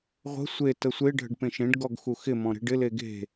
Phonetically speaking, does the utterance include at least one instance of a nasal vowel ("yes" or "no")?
yes